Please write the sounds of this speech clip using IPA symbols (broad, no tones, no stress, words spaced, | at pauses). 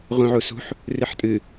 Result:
ʁũʕusṳħ | rɨħtʼɨ